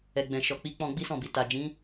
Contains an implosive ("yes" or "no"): no